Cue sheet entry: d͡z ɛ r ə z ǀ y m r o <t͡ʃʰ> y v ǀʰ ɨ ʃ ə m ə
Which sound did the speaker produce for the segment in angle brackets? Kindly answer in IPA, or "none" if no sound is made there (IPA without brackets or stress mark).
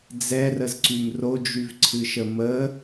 d͡ʒ